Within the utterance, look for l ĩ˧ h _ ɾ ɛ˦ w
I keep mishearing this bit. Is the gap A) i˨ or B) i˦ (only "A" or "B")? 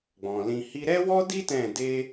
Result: B